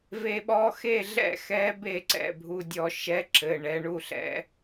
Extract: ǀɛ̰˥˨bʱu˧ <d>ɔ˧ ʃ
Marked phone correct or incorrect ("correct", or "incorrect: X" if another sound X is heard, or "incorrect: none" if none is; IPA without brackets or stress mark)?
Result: incorrect: dʲ